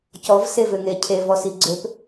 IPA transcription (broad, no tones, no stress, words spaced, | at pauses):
cɔvsevʏŋe cʰevɔsi ɡ͡ǀøp